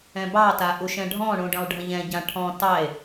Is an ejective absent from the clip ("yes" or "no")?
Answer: yes